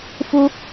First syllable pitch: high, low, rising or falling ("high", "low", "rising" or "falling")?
high